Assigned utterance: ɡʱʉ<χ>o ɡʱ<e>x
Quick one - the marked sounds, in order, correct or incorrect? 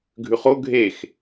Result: correct, correct

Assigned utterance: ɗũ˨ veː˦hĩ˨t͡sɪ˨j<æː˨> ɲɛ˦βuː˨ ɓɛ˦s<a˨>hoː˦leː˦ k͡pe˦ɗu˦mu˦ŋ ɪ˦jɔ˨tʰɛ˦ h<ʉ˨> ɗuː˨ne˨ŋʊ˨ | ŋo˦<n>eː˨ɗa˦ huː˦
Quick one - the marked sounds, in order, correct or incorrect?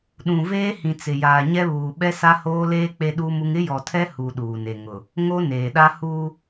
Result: incorrect: aː˨, incorrect: a˦, incorrect: u˨, correct

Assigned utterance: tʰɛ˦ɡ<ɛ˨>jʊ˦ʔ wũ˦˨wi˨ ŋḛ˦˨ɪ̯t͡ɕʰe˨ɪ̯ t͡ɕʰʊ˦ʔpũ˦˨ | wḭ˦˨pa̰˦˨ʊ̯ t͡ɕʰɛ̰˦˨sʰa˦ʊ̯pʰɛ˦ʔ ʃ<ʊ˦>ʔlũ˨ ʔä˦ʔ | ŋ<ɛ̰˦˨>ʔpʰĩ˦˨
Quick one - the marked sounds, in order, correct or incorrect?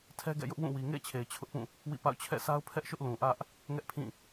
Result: incorrect: ɛ̰˦˨, correct, incorrect: ɛ˦

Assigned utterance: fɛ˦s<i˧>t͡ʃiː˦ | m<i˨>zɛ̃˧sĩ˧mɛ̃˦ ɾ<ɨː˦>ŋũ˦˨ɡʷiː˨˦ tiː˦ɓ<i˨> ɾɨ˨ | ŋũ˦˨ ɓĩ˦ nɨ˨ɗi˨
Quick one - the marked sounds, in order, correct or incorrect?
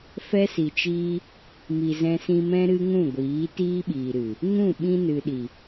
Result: incorrect: i˨, correct, incorrect: ɨ˦, incorrect: iː˨

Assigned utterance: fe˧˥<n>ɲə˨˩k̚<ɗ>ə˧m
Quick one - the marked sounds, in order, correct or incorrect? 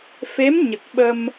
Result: incorrect: m, incorrect: ɓ

